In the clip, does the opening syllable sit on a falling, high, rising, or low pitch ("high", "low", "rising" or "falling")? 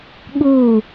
falling